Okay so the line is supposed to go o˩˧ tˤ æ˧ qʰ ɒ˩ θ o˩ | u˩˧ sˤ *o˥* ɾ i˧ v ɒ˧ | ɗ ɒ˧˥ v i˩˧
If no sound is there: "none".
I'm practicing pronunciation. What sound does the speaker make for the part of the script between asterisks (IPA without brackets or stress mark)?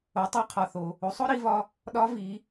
o˥